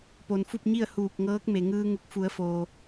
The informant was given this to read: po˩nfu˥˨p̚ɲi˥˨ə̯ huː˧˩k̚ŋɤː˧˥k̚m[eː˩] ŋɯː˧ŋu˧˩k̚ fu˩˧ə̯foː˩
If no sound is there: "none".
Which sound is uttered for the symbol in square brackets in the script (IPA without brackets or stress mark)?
e˩